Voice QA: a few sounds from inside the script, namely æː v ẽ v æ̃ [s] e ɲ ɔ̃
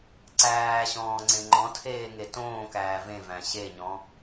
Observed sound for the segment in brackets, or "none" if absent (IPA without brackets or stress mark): ɕ